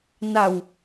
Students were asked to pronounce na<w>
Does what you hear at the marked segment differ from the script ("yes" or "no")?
no